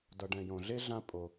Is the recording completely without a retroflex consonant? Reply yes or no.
no